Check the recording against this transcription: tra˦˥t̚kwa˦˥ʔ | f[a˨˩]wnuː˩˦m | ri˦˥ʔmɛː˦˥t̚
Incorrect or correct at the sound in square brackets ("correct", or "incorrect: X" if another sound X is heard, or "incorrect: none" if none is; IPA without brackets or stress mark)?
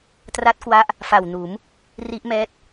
correct